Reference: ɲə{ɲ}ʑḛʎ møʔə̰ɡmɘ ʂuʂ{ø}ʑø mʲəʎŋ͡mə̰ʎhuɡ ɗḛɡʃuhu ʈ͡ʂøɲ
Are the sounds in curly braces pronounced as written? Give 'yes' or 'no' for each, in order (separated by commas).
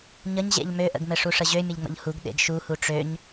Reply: yes, no